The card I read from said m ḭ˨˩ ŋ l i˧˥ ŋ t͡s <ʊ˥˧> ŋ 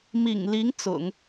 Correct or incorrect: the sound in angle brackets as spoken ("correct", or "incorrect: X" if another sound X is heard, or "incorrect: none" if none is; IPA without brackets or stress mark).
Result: incorrect: ʊ̰˨˩˦